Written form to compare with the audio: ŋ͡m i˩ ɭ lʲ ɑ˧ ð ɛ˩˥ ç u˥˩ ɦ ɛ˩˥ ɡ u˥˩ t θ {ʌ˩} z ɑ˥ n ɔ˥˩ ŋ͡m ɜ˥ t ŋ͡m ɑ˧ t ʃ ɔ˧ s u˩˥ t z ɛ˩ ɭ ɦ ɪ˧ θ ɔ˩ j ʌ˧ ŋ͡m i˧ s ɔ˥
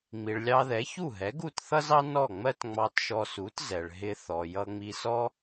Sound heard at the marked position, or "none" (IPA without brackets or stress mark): ʌ˥